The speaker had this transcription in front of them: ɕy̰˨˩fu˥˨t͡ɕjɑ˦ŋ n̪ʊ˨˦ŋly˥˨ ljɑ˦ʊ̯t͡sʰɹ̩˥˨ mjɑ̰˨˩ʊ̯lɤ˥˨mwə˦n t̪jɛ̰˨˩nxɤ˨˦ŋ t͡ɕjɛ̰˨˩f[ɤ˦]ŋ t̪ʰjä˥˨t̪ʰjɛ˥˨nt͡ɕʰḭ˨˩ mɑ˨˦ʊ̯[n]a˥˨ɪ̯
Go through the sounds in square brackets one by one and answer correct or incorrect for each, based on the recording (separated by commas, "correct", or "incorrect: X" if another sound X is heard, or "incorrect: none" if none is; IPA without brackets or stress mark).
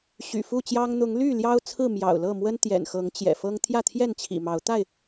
correct, incorrect: t̪